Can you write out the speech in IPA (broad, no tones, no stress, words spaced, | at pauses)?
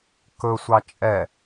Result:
kɵsʷɑ t͡ʃʼɛ